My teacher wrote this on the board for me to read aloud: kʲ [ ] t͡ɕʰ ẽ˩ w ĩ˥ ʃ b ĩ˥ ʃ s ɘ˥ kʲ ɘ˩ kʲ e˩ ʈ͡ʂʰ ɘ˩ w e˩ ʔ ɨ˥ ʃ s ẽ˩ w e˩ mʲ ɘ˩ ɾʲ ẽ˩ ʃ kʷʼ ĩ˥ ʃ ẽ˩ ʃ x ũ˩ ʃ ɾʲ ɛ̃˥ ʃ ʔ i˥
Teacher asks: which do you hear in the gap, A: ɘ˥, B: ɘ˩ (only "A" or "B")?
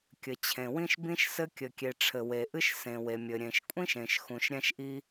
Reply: B